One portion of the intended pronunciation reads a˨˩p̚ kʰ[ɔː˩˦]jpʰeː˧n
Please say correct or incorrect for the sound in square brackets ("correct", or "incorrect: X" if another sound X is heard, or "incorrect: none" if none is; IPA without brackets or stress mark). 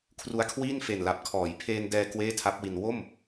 correct